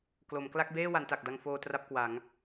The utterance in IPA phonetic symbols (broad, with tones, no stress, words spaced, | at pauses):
klo˩˦m kla˥˩k̚beː˥˩wa˩˦n ta˨˩k̚da˧ŋfoː˧ tra˥˩p̚kwa˩˦ŋ